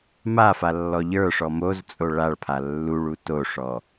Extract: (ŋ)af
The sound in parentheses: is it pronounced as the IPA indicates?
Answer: no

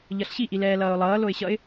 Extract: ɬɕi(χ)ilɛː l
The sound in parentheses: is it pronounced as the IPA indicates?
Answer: no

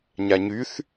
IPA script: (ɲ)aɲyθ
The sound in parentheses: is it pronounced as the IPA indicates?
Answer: yes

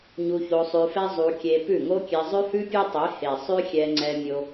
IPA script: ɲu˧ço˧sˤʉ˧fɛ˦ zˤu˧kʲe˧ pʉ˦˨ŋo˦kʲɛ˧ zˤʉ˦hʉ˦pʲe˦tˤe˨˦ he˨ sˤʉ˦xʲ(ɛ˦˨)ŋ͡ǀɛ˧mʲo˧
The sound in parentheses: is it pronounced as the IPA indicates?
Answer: no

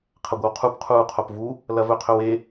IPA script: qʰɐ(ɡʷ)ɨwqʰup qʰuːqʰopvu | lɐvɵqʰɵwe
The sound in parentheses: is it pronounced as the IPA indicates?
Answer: yes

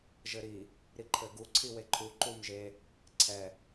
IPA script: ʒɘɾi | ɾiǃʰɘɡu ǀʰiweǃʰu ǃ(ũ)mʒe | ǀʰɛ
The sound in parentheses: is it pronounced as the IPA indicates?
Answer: no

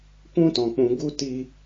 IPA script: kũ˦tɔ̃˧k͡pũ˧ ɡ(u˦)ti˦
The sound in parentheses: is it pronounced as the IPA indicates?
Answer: yes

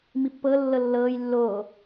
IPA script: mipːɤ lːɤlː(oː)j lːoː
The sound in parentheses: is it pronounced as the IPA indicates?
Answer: no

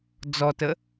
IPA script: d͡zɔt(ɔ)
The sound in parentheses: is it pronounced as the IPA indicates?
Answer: no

